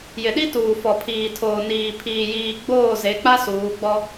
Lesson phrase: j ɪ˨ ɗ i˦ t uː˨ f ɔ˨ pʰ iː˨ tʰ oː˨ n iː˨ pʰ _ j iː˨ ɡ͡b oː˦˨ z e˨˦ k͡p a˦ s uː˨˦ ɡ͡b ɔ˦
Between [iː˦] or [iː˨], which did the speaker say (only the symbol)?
iː˨